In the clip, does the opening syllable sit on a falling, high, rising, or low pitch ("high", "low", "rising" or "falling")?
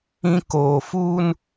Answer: high